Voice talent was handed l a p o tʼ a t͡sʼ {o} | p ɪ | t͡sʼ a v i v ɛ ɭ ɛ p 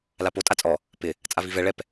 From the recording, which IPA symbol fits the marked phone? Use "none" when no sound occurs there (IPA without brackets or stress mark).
ɔ